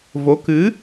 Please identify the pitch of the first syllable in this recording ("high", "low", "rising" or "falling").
rising